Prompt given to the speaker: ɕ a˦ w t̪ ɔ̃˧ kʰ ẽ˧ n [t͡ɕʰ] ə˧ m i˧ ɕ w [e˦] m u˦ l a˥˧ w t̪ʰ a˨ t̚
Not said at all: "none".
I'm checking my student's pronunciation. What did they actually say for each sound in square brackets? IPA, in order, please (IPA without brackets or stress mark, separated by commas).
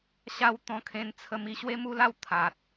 t͡sʰ, e˦